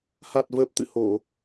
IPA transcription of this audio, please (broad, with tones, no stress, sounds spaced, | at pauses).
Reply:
h a˨˩ t̚ v əː˨˩ p̚ t̪ ɨ̰˧˨ h o˧˩˨